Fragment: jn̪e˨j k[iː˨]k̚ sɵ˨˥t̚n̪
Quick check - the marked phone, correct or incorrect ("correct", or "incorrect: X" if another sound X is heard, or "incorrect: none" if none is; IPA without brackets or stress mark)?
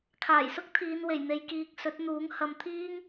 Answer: correct